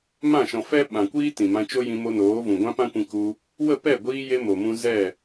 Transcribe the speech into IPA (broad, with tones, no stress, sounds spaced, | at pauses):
m ã˦˨ ʃ ɔ̃˨ f ɛ˦ ɓ ã˨ kʷ iː˦ t ĩ˨ m ã˧ t͡ʃ o˦ j ĩ˧ m o˧ n oː˨˦ v ũ˨ ɡʷ ã˦ p ã˦ kʷ ĩ˧ k u˧ | w ə˦˨ p ɛ˦˨ ɡʷ iː˧ j e˧ m o˨ m ũ˧ z ɛ˦˨